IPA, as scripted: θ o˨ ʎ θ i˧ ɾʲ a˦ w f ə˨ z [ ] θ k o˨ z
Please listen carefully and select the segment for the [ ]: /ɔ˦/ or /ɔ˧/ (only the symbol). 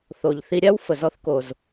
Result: ɔ˧